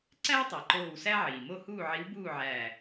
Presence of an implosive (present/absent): absent